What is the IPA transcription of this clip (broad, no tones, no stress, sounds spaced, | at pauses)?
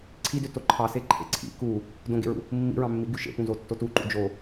ǀʰ i d ø t o ǃʰ ɑ s e ǃʰ ḛ ǀʰ ḭ k u | d õ ɡ ḛ ɹ ṵ | mː ḭ ɹ ɑ̃ mː i ɡ y ʃ ḛ p ũ z o tː o t u ǃ ṵ d͡ʒ o